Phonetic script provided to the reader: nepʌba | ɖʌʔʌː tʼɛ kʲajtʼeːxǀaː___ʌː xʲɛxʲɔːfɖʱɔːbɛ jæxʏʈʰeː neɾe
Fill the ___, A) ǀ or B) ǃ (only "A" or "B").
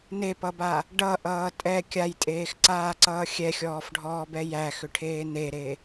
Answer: A